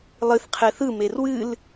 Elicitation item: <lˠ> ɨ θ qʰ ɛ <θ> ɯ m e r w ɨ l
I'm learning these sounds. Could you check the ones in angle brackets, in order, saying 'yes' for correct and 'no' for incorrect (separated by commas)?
yes, yes